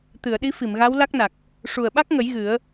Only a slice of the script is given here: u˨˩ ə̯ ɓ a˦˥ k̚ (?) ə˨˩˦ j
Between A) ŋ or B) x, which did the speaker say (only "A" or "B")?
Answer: A